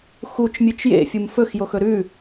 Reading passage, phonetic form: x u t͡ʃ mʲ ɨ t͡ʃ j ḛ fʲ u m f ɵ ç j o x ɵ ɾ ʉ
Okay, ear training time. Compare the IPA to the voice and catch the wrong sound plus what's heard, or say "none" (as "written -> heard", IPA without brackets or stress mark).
ç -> x